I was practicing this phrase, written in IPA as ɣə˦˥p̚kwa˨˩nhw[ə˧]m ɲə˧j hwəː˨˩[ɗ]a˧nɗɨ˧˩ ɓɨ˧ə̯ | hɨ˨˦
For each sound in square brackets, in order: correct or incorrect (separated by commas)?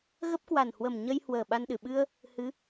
incorrect, incorrect